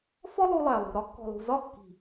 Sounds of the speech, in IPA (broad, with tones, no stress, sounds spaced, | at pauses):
f ɔ˦ lˠ u˧ lˠ æ˨ lˠ ṳ˨ ɾ ɒ˦ kː ɔ̤˨ lˠ ṳ˨ z ɒ˦˨ kː i̤˨